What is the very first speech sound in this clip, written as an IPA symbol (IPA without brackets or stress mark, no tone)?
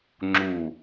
ŋ͡ǁ